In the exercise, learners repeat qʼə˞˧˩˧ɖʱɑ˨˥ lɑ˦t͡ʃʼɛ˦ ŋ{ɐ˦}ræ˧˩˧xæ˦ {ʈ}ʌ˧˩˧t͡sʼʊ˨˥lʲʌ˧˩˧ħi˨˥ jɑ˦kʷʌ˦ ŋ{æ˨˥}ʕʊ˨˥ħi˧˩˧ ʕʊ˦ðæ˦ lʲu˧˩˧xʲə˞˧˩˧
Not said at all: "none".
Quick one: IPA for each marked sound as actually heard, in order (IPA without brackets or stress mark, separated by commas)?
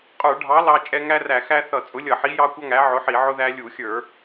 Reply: æ˦, θ, æ˨˥